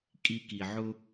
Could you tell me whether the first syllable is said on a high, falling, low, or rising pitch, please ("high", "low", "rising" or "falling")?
high